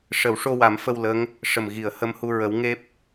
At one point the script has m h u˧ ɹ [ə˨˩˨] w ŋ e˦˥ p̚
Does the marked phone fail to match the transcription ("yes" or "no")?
yes